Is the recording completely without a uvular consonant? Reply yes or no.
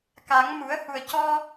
yes